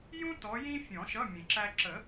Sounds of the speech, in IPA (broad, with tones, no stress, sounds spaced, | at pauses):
j ũ˥ t ɔ˨˦ j ĩ˥ fʲ ɔ̃˨˩˦ ʃ ʌ˧˥˧ mʲ ə̃˨˩˦ ǁ æ˥ ǁ ə˨˩˦